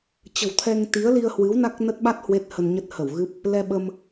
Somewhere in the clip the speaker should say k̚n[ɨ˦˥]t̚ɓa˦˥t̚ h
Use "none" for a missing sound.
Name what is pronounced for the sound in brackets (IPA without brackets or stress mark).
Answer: ə˦˥